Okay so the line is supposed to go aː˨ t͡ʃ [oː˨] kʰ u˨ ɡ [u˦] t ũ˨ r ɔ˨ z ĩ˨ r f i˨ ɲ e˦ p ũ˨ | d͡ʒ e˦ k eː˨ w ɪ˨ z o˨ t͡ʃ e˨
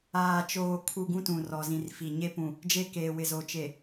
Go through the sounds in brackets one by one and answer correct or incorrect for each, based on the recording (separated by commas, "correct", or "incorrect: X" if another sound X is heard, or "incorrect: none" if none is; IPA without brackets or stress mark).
correct, incorrect: ũ˦